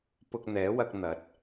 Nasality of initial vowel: oral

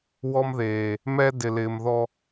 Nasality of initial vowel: oral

